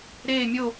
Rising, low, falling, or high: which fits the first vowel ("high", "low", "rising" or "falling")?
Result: falling